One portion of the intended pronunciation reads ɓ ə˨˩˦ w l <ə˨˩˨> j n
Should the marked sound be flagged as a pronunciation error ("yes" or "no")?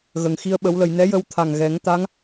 no